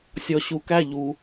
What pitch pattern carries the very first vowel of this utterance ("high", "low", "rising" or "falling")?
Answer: low